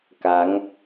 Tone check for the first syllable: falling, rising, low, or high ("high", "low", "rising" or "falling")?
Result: rising